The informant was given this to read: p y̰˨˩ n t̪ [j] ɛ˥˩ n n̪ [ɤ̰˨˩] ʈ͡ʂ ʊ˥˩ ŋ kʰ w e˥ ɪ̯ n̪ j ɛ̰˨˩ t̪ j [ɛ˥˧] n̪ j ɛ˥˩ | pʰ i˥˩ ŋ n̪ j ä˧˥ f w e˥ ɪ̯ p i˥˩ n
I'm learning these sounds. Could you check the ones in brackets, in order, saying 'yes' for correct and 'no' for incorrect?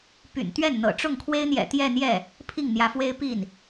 no, yes, yes

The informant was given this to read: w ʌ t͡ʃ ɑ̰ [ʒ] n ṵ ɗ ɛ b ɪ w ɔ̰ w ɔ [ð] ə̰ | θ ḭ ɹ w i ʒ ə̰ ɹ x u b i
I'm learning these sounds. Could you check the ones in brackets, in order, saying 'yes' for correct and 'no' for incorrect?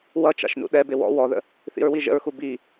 no, yes

